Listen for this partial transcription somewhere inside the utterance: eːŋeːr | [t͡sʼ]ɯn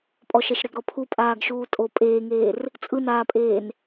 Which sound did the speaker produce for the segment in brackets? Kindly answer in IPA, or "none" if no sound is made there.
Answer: t͡sʼ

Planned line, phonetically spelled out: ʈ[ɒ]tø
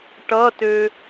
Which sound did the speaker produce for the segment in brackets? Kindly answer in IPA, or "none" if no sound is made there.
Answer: ʌ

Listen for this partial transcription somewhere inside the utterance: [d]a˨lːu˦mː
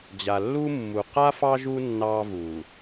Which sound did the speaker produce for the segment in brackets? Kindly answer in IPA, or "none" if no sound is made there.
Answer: d͡ʑ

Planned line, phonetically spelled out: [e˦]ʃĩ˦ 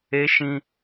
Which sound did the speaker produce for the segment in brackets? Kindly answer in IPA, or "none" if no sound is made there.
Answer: e˦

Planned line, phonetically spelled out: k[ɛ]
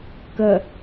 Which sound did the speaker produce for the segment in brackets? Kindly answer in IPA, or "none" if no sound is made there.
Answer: ə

